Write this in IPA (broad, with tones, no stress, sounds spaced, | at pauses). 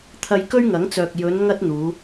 t̪ʰ ɐ˧ j k ɵ˥ ɥ ŋ ɐ˨˥ ŋ t͡s œː˨ k̚ j ɵ˨˧ n ŋ ɐ˥ t̚ n̪ uː˨˧